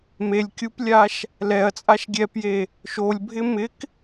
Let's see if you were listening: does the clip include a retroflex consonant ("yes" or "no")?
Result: no